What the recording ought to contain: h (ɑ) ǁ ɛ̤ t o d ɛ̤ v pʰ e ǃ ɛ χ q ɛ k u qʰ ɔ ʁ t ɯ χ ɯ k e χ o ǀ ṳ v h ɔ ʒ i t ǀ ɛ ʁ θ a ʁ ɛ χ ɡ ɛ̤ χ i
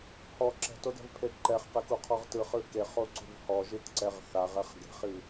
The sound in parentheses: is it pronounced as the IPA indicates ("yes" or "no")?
no